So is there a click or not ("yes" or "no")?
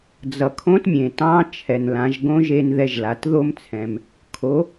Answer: no